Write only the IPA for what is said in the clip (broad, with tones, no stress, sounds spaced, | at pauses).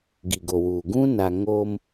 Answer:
ɡ i˨ ɡ o˨ w uː˨ ɡ ũ˦ n a˨ ŋ oː˦ m